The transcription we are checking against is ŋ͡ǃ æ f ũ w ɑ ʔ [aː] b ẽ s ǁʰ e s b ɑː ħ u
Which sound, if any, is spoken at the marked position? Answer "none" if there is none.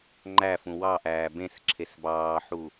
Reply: æː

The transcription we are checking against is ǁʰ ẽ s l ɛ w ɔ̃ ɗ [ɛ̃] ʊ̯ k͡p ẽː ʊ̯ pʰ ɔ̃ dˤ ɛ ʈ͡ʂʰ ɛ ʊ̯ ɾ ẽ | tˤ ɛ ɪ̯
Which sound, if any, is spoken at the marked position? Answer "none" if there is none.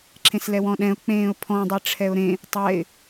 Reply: ɛ̃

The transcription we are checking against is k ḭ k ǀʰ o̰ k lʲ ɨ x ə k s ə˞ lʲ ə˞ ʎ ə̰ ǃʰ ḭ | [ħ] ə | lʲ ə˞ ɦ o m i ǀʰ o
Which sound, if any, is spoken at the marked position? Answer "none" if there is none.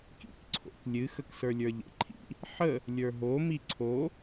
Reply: ħ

